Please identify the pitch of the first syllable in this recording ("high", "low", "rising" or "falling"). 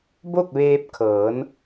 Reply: falling